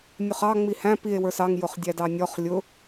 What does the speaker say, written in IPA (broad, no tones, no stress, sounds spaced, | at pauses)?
nʲ ʊ χ ɑ ŋ͡m i h æ̃ p i e̯ w ə˞ s ɑ ŋ j ʊ χ dʲ æ d ɑ nʲ ɔ χ lʲ ʊ